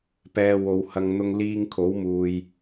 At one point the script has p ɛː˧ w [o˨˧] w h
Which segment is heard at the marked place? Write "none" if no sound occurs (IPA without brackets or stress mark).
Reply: o˨˧